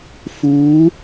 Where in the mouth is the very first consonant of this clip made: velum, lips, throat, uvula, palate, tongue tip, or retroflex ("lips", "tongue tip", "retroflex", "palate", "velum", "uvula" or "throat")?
lips